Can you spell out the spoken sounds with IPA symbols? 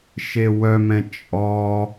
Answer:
ʃewœmɛ̃ t͡ʃʼɔ

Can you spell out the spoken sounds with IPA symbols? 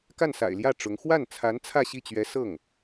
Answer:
ka˥˩nsa̰˨˩ɪ̯ljä˥˩ ʈ͡ʂʊ˧˥ŋ xwa˥˩nt͡sʰa˧˥n t͡sʰä˥˧ɕi˥˩t͡ɕɥɛ˧˥ sɤ˥˩ŋ

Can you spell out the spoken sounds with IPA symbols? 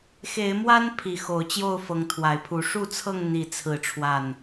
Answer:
xe˨˦ɪ̯ mwa˦npʰi˨˩ xo˨˦ʊ̯ t͡ɕjo˥˨ʊ̯fɤ˨˦ŋt̪ʰwa˨˩ɪ̯pʰu˨˦ ʂu˥˨t͡sʰɤ˥˨ŋ n̪i˥˨ t͡sʰɹ̩˥˨ʈ͡ʂʰwa˥˨n

